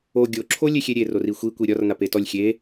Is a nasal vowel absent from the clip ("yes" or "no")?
yes